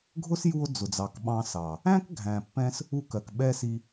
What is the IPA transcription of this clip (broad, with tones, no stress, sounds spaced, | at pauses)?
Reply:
ɡʱ ʊ˦ s j u˧ o̯ d͡z ʊ˨ d͡z ɑ˨ k ɓ ɑ̃˧ s ɑ˨ | æ̃˦ k ɡʱ æ̃˨ pː ɛ̃˧ s | u˧ k ɜ˨ k ɓ ɛ˦ s i˧